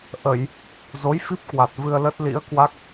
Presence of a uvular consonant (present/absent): absent